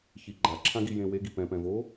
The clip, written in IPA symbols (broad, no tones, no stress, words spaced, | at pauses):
çiɡ͡ǃaǁʰãɡi jẽweɡi pɛ̃pɛ̃vo